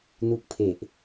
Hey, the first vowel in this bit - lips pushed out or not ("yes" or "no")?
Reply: yes